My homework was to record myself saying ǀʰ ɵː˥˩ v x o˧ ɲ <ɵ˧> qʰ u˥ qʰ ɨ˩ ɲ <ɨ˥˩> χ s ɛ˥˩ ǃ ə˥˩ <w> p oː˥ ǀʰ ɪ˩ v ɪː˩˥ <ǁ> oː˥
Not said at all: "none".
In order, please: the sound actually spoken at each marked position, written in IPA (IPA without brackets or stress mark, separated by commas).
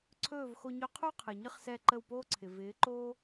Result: ɵ˧, ɨ˥, w, ǃ